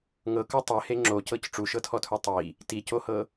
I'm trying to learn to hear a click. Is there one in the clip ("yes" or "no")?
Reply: yes